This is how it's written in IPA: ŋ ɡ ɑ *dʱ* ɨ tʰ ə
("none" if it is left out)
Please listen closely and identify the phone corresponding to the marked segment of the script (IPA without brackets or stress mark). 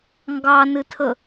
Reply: n